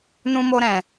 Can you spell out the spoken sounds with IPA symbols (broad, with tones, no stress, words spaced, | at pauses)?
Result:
nũ˦mo˦ɾɛ̃˧